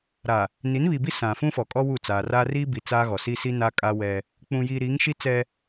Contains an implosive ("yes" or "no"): no